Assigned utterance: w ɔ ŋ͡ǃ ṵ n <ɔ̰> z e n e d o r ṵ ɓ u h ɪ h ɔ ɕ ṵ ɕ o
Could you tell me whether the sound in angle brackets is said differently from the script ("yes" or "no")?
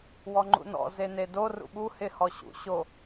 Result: no